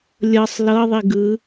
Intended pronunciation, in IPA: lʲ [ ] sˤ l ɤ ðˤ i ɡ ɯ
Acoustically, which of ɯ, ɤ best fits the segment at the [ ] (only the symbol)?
ɤ